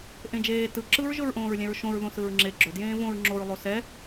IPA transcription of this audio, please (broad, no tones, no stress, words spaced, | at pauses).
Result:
ʔẽd͡ʒeː tɯ ǁɯɹ ʒɵɹʔõːɹlʲɛ̃ɹʃõɹ ðõsɯɹŋ͡ǁe ɡ͡ǁɵ djẽːvõɹ ŋ͡ǁoɹ lˠosɛ